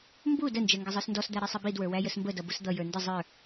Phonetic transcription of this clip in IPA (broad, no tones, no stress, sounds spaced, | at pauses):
m b u d ə n d͡ʒ ɛ ŋ ɡ ə zˤ ə˞ s n d ɔ s d̪ æ ɾ ɛ sˤ ɪ b i d w ə˞ w æ j ə s m b ə d ʌ b ʊ s d̪ ʌ j ə˞ n d ɪ zˤ ə˞